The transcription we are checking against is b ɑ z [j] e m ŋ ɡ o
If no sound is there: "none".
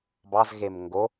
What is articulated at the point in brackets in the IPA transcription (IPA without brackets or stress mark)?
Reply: ɣ